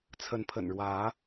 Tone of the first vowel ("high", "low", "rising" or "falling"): rising